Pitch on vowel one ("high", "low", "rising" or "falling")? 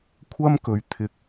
high